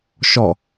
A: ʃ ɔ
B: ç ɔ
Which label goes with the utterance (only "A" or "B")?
A